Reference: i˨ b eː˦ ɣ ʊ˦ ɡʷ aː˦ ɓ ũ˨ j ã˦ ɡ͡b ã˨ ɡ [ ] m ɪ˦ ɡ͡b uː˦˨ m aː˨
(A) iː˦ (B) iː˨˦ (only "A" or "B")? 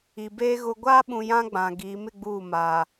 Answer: B